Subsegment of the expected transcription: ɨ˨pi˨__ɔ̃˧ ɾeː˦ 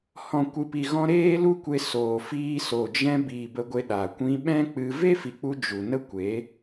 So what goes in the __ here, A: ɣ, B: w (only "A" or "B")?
A